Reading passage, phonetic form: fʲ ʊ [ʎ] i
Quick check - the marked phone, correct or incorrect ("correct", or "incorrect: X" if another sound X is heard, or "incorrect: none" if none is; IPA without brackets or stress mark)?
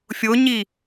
incorrect: ɲ